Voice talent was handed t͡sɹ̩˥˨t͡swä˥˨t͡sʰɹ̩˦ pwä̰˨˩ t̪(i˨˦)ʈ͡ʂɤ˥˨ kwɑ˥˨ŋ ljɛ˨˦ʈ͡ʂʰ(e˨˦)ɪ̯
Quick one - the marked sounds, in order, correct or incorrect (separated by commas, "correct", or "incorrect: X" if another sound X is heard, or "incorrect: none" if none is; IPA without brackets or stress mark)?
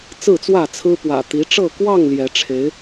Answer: correct, correct